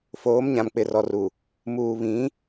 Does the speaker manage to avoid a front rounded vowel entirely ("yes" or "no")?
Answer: yes